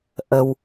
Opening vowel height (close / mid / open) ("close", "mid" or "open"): mid